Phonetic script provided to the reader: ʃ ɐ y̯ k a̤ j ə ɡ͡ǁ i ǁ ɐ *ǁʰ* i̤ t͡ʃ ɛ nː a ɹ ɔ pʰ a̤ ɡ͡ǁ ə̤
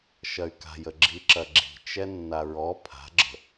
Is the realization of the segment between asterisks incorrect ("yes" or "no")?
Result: yes